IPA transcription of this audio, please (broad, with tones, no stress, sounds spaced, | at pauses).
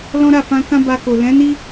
l ɔ̃˦ ɾ a˦˨ f ã˧ k ã˦ b a˧ k o˨ l ɛ̃˨˦ n i˦